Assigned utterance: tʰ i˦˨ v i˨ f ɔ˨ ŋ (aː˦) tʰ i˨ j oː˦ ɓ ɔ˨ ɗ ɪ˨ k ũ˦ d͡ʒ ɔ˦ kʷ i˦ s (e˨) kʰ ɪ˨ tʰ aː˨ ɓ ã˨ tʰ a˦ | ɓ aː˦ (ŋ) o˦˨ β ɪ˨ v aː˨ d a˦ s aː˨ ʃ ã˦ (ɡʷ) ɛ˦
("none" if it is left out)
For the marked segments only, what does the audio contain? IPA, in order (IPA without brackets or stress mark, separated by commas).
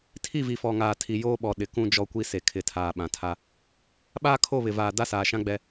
aː˨, e˨, kʰ, ɡ͡b